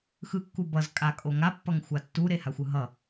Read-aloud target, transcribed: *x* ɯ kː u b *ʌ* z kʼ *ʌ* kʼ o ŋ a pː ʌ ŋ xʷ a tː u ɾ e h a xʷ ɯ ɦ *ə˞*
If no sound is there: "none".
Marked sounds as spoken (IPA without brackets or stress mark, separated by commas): x, ʌ, a, ʌ